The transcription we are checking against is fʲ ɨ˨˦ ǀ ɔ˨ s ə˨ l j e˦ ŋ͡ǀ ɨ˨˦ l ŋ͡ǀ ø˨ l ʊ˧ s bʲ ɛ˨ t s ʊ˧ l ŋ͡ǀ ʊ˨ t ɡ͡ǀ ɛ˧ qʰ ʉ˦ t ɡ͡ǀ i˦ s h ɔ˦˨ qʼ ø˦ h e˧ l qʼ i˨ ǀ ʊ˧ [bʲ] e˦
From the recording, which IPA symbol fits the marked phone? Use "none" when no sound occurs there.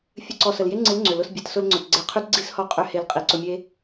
mʲ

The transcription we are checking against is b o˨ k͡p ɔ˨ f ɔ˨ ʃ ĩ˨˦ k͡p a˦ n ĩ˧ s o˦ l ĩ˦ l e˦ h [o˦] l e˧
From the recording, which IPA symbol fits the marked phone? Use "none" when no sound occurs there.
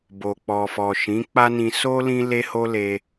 o˦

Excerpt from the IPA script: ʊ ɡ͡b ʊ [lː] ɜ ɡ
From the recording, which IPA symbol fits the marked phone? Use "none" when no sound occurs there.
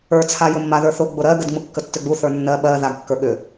ɾ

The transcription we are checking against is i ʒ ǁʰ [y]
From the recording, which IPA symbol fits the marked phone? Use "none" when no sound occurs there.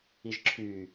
y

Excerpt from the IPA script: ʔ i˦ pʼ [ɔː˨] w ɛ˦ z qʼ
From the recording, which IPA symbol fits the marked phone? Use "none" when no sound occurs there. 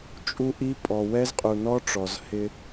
ɔ˨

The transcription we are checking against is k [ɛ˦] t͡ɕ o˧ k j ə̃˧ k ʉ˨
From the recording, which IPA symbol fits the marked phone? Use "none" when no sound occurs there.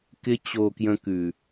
ɪ˦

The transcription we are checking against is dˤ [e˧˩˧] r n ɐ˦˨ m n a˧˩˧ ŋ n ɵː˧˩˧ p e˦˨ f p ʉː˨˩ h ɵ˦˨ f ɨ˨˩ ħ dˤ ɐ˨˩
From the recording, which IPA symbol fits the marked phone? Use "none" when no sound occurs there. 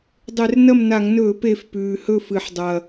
e˧˩˧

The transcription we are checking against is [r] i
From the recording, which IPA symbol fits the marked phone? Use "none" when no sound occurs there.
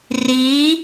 r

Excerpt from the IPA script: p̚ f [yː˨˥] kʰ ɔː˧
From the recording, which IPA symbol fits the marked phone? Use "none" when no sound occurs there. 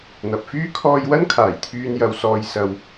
yː˥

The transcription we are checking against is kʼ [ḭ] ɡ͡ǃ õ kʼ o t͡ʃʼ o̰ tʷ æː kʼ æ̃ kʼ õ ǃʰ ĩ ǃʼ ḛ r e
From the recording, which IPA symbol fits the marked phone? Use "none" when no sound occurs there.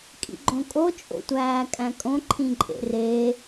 ḭ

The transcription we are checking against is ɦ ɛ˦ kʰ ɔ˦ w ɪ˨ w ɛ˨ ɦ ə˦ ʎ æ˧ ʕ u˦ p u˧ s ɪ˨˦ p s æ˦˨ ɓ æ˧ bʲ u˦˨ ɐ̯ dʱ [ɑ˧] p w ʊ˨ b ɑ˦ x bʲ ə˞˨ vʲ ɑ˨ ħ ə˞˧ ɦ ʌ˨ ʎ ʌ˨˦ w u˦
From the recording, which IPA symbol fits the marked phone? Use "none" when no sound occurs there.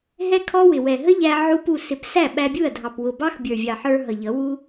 ɑ˨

